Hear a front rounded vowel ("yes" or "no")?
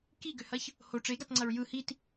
yes